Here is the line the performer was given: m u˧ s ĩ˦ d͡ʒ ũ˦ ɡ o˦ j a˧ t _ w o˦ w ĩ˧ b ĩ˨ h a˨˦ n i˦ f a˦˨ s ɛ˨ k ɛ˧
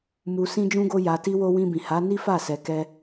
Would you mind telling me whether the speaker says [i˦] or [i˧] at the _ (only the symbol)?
i˦